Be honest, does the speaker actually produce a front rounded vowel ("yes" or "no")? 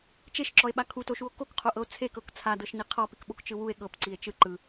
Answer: no